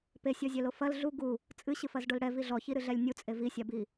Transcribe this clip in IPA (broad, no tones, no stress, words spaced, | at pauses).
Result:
pesʲɔzʲɛlo fɐl ɮu ɡu | t͡sʼɨɕɨfɐzɖol ɽɛvi ɮɔçiɾɨɮɛlʲ nʲut͡sʼe visʲabi